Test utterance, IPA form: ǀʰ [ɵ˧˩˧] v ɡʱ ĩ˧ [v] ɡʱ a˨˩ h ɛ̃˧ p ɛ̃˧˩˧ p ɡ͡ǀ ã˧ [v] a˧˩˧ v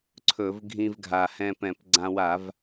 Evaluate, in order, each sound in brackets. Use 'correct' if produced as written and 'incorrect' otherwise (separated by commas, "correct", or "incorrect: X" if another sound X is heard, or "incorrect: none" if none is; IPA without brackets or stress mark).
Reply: correct, correct, incorrect: w